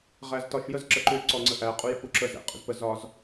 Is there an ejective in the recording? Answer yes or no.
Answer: yes